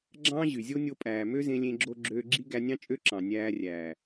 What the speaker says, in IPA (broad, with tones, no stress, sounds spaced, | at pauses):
ɡ͡ǁ ɑ̃ː˦ ʑ y˨ zʲ o˦ nʲ o˧ pʼ æː˨ m ø˦ z ẽ˧ lʲ ẽ˧ ɡ͡ǁ o˧ ɡ͡ǁ øː˧ ɡ͡ǁ i˦ ɡ æ˧ nʲ ɑ̃˦ t͡ʃʼ ø˦ ǁ ɑ̃˨ nʲ æː˧ rʲ æː˨